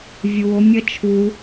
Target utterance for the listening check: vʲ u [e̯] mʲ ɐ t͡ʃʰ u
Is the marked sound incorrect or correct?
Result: incorrect